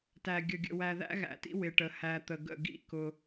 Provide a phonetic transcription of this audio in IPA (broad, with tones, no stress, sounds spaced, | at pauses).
t æ˨ ɡʲ ə˨ ɡʲ ə̰˨ w æ˨ ð æ̰˦ ɣ æ̰˨ t ḭ˦ w ɪ˨ ʈ ə˨ h æ˨ t̪ ə˨ ɡ ə̰˦˨ ɡ ḭ˦ k ʊ˦